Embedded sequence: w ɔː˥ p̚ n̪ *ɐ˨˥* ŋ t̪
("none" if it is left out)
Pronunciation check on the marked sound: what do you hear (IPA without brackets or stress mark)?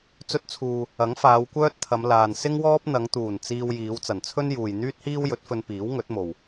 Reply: ɐ˨˧